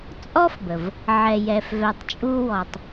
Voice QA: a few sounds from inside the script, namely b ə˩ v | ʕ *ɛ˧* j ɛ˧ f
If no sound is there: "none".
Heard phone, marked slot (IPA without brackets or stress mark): ɛ˧